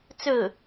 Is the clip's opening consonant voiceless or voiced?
voiceless